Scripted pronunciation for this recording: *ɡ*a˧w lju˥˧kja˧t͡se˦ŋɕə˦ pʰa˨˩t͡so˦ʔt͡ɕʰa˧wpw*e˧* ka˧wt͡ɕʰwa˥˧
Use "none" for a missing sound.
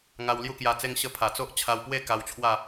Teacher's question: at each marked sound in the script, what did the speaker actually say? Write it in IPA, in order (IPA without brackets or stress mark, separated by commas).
ŋ, e˥˧